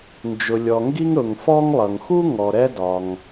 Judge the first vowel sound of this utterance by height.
high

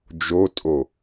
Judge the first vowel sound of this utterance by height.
mid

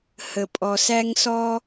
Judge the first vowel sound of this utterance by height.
mid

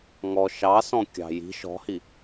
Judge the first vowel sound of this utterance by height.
mid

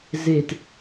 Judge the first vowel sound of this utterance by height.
mid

